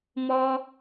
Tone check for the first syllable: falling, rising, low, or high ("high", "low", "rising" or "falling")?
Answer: high